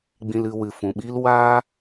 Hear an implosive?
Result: yes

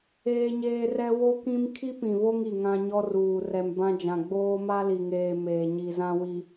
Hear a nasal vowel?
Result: yes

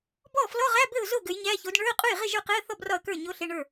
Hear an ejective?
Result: yes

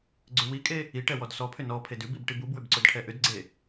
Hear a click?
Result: yes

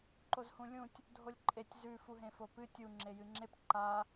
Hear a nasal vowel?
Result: yes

